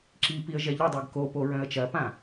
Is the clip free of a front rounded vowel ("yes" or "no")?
no